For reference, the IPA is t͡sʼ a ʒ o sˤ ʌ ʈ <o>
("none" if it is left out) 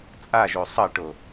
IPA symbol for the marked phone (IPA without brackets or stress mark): o